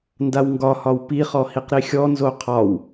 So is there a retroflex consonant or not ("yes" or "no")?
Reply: no